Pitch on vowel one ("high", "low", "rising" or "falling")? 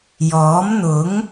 rising